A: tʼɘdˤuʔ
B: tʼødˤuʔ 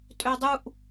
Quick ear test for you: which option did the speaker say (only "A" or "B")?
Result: B